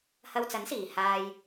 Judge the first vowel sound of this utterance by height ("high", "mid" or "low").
low